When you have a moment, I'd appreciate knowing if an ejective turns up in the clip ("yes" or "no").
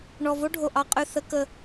yes